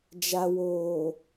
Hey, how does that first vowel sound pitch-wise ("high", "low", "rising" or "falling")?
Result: low